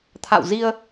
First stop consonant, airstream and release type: aspirated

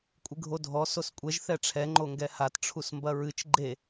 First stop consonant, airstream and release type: ejective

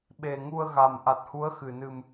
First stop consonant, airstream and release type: implosive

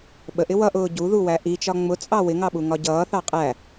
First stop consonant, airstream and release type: implosive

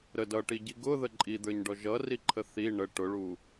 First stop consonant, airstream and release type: plain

